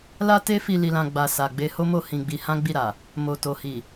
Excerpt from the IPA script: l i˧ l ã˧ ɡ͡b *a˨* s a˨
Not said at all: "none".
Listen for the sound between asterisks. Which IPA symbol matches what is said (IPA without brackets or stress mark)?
a˧